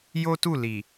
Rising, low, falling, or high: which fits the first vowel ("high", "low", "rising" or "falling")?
high